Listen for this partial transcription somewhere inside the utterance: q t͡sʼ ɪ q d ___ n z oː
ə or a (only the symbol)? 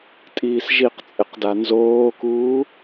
a